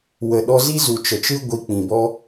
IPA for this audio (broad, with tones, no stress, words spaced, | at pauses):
wə˨ɗɔ˧ zi˦zu˨ t͡ʃə˨t͡ʃɨ˦ ɡʷi˧k͡pĩ˨bɔ˦